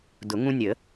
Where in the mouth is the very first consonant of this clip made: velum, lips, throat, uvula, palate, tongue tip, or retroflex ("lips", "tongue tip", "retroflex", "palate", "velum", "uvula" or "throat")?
tongue tip